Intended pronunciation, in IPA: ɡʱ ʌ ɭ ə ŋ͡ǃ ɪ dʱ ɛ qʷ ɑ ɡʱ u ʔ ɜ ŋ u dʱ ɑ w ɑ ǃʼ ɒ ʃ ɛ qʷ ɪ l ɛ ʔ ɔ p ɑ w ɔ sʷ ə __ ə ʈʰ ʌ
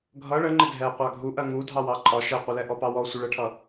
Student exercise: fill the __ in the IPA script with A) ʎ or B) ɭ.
B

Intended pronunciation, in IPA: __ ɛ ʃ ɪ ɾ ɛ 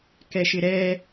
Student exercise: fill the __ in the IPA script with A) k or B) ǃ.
A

